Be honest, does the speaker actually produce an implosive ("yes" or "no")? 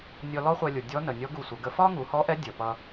no